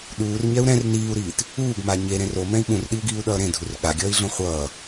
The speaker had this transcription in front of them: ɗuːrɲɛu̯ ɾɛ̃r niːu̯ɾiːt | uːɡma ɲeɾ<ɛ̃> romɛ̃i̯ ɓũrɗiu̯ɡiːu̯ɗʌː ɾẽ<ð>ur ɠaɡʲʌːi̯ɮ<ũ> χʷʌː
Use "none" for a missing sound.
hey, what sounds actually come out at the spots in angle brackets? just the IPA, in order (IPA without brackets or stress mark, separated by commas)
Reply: ẽ, dʱ, õ